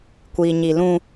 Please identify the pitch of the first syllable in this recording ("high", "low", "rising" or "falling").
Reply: low